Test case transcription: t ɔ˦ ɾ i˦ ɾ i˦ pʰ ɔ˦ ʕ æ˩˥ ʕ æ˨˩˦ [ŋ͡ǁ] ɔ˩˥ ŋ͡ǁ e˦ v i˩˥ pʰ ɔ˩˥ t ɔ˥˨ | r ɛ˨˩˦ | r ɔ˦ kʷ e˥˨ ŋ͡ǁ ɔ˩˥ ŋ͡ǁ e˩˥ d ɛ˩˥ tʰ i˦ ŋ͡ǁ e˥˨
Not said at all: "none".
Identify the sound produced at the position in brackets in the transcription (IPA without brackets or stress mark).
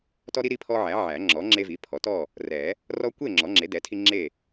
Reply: ŋ͡ǁ